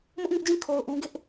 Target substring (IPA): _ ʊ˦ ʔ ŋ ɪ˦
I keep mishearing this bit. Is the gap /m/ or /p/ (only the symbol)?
m